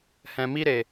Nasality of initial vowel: nasal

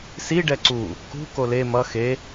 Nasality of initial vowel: oral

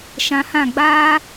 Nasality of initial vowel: nasal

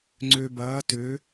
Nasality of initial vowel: oral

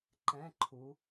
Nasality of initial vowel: nasal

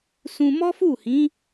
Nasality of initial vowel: nasal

